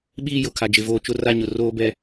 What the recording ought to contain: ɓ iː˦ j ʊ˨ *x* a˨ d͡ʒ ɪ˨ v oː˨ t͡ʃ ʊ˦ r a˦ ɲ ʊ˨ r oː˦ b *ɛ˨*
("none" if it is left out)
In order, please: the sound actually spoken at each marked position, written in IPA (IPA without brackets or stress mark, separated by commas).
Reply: kʰ, ɛ˦